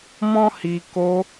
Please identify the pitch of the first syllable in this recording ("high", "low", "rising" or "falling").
high